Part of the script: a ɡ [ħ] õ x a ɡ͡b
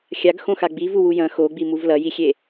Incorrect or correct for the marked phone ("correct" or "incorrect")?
incorrect